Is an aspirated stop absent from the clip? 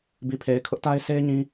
no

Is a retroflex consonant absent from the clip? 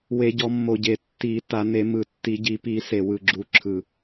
yes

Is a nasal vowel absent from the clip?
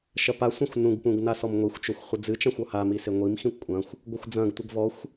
no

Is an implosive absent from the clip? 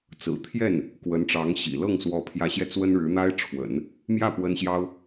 yes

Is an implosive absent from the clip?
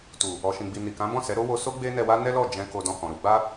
yes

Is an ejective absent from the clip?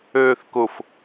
yes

